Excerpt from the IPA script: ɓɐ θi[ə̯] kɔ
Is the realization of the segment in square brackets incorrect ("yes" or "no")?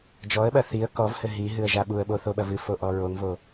no